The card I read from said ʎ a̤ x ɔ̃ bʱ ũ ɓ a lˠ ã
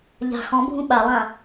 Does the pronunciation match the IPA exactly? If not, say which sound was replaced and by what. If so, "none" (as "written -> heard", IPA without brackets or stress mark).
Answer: none